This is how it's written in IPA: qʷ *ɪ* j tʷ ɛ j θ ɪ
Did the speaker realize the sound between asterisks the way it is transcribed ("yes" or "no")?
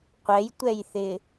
no